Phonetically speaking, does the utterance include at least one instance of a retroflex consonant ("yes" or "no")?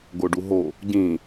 yes